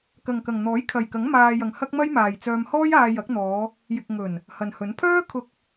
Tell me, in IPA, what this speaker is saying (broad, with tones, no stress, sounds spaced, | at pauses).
k ɐ˨ ŋ k ɐ˨ ŋ n̪ ɔː˨˥ j kʰ ɐ˨ j k ɐ˨˥ ŋ m aː˧ j ɐ˨ ŋ h ɐ˥ k̚ m ɐ˥ j m aː˨ j t͡s œː˧ m h ɔː˥ j aː˧ j ɐ˨˥ k̚ n̪ ɔː˨˧ | j ɪ˨ k̚ ŋ ɵ˨˩ n | h ɐ˨ n h ɵ˨˥ n pʰ œː˥ kʰ ʊ˧ k̚